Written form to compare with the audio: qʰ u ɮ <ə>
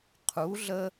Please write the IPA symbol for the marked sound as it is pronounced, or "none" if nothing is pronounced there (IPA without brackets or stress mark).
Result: ə